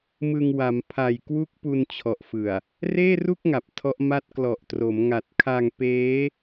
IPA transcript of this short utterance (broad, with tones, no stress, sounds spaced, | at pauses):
m ɯ˧ ŋ w a˩˦ m pʰ a˨˩ j k w u˥˩ k̚ p u˧ n t͡ɕʰ ɔ˨˩ ʔ f ɯ˨˩ a̯ | r eː˥˩ r u˥˩ k̚ ŋ a˨˩ p̚ tʰ ɔ˦˥ ʔ m a˦˥ t̚ k l ɔ˨˩ ʔ t r o˩˦ m ŋ a˨˩ t̚ kʰ a˧ ŋ p eː˦˥